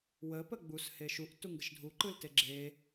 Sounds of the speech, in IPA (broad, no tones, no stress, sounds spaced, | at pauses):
w ə p ə ɡ͡b u s h e ʃ u ʔ t u ŋ ɡ ə ʃ dʱ u ǃ ɯ l t e ɡ͡ǁ e